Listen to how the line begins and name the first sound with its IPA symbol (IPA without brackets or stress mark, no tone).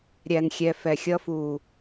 ɾʲ